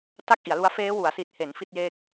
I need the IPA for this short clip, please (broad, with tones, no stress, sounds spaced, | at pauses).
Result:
t a˥˩ k̚ ʔ i˩˦ a̯ l u˦˥ a̯ f eː˦˥ w u˩˦ a̯ s i˨˩ t̚ h e˩˦ n f i˥˩ t̚ j e˥˩ k̚